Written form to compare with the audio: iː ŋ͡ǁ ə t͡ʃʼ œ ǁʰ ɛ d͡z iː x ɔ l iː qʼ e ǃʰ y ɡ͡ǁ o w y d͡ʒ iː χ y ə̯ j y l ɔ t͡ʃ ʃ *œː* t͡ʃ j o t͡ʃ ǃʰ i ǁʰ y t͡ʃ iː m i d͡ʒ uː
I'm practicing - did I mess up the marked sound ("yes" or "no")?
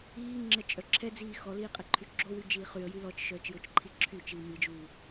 no